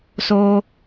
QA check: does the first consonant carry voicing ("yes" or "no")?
no